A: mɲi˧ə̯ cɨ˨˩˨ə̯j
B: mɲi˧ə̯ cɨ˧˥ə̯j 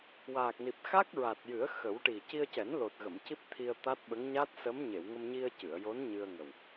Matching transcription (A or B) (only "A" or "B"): A